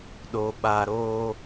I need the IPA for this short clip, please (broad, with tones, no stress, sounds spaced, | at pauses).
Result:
ɗ o˨ ɓ a˨ ɾ oː˧